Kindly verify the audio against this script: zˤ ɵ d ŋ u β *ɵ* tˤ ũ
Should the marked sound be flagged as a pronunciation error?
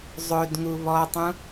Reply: yes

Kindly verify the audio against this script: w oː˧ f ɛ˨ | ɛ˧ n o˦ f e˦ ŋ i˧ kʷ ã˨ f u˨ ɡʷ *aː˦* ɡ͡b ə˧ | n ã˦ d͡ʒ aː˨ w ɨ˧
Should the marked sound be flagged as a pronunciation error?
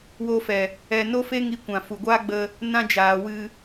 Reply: no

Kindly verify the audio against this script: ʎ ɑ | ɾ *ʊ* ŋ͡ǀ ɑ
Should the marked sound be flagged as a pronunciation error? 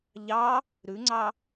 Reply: yes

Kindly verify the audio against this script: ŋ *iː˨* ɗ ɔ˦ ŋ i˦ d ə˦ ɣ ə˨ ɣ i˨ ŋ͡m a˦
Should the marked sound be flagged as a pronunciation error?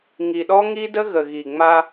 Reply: yes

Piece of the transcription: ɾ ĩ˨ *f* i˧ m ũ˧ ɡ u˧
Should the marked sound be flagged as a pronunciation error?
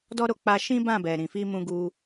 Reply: no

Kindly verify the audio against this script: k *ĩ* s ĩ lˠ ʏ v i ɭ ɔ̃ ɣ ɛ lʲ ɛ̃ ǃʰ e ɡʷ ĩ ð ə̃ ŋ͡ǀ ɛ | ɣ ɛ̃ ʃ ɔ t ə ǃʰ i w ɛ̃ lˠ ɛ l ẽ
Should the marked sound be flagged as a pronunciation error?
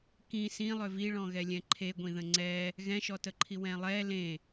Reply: no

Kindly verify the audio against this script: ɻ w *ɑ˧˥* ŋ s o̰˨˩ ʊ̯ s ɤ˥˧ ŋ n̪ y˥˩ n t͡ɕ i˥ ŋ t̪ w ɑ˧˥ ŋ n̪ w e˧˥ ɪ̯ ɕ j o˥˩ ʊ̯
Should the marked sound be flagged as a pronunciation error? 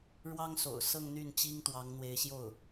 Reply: yes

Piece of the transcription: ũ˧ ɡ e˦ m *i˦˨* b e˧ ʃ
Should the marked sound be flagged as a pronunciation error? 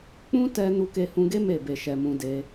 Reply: yes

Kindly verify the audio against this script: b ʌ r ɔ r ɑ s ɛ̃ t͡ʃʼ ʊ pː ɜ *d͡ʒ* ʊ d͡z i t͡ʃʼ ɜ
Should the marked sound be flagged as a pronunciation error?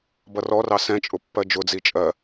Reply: no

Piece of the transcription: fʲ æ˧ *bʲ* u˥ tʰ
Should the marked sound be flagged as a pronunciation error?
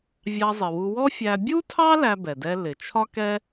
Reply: no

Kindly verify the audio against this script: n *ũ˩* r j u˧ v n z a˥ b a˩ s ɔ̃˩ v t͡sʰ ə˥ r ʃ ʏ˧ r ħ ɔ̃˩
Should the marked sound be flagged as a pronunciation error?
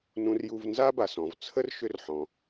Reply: yes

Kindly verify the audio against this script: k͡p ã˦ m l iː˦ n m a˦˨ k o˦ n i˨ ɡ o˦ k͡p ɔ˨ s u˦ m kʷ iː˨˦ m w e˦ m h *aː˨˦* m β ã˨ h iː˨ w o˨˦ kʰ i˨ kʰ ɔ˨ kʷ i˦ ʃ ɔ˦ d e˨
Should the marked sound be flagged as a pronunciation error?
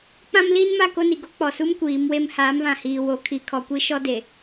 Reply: no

